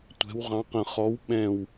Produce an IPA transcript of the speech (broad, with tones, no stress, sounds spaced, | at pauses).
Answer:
tʷ ɛ̤˧˥ w ʁ ɑ̃˧˥ q ə̃˦˨ χ ɔ˧˥ w ɓ ɛ̃˦˨ w